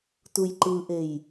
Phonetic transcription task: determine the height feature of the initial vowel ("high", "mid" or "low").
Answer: high